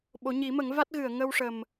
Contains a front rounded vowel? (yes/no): no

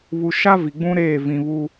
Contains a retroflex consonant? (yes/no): no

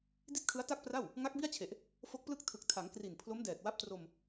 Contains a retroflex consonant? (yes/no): no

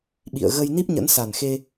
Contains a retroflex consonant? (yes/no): no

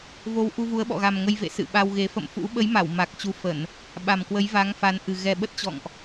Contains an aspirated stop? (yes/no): no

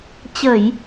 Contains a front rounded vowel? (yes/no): no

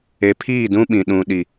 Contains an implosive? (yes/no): yes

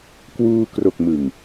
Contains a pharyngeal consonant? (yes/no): no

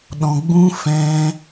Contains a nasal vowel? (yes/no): yes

